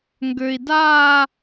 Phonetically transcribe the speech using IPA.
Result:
ŋ ɡ ø˨ i̯ d aː˥˧

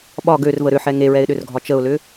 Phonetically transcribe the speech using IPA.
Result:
ɓ ɒ ɡ ø r v ə ɾ ʏ ħ ɛ ŋ e ɹ ɛ ɪ̯ ɗ ʏ r ɡʱ ɒ t͡ʃ ə ʊ̯ l ʏ

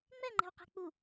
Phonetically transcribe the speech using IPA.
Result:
ŋ͡m ɛ ŋ͡ǃ ɛ̤ w q ɛ̤ k͡p u

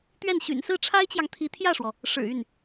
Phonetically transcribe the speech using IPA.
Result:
t̪ ɥ ɛ˥˩ n ɕ y̰˨˩ n s ɹ̩˥˩ ʈ͡ʂʰ a˥ ɪ̯ t͡ɕ j ɑ˨ ŋ t̪ʰ i˧˥ t̪ʰ j ä˥˩ ʂ w ɔ˩ | ʂ ɻ̩˨˩ y˥˩ n

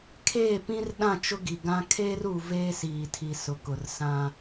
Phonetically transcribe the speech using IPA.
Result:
kʰ eː˦˨ p ĩ˦ r ɗ ã˦˨ t͡ʃ ʊ˦ ɡ i˨ ɡ ã˦ kʰ eː˦ r uː˨ v eː˦ s iː˨ tʰ i˨ s ʊ˨ k ʊ˨ r s ã˦

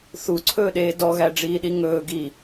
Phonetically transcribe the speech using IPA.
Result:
θ u ǀʰ ɵː ɗ eː d ɔ ɣ æ ɖ͡ʐ iː ɗ i ŋ ɵː ɡ i

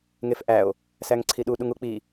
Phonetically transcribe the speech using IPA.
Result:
ŋ e f ʔ æ o̯ | s æ ŋ ǀʰ i ɗ u ɗ u ŋ u k͡p i

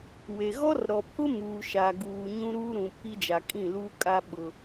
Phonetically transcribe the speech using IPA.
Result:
w e˨ ɣ ɔ˦ r ɾ ɔ˨ pʰ ʊ˦ m uː˨ ʃ a˨ ɡ uː˨ ɲ ũ˦ ɾ uː˦ ɾ ũ˨ pʰ i˦ d͡ʒ a˨ kʼ ĩ˦˨ l uː˦ kʼ a˦ ɓ ʊ˨

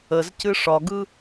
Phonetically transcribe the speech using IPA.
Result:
ə z c ɨ ʂ ɒ ɡ ɯ

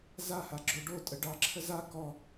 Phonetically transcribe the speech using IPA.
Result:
z a h a ɡ͡ǁ o ɖ o tʼ ə ɖ ɑ ǁʰ ə z a k ɔ

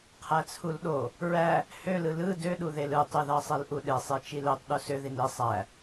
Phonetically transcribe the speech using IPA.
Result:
qʰ æ t͡sʰ u l ɗ o | ɹ æ | h ø l ɯ l ɯ d ø ɗ u ð e l ɯ tˤ y ð ɑ sˤ e l ʔ u ɗ e sˤ e t͡ʃ i l ø tˤ ɗ u s ø ð i n i sˤ æ

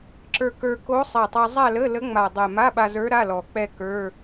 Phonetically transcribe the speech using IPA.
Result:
ǁ ə˞˧ k ə˞˧ k o˧˥ sˤ ɛ˨˩ tˤ ɛ˧ zˤ a˥˧ l ə˧˥˧ l ə˧˥ ŋ͡m a˨˩ dˤ ɛ˨˩ m a˧˥˧ ɓ a˧ z ə˞˧˥ ɾ a˧˥˧ l ɔ˨˩ k͡p ɛ˥˧ k ə˞˧˥˧

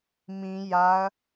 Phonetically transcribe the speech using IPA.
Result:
m ĩ j a ɐ̯

